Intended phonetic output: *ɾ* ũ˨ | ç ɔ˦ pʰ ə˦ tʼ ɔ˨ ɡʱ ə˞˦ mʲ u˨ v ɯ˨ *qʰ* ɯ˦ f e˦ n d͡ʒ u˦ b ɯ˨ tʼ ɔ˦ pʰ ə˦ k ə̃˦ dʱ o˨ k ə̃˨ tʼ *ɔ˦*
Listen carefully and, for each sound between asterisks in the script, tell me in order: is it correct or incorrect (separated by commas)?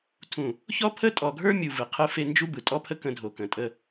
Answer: incorrect, correct, incorrect